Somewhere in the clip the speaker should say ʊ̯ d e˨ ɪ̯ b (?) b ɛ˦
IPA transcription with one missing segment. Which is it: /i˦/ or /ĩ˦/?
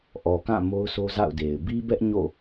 i˦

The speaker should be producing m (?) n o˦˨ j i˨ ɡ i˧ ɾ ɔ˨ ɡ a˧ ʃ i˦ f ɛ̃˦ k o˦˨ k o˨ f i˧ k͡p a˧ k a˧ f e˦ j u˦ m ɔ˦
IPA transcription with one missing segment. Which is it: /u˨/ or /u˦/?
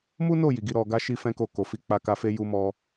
u˦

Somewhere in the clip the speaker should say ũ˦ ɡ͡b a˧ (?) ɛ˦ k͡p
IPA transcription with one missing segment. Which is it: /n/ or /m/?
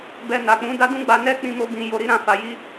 n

